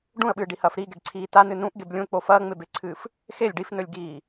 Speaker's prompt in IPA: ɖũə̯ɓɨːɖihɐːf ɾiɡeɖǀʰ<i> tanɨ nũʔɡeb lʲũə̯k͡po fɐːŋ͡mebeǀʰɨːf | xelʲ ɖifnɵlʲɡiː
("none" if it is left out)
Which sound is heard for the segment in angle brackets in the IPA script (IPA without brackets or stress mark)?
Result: iː